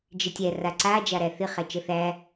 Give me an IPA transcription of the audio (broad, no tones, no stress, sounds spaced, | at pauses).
d͡ʒ ɪ tʲ æ r a ǀ a d͡ʒ a ɾ æ θ ɪ χ æ t͡ʃ ə θ æ